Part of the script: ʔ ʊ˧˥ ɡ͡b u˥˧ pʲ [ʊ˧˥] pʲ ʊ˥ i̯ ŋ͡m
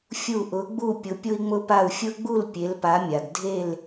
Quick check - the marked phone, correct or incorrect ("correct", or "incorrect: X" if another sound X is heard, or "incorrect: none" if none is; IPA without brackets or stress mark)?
correct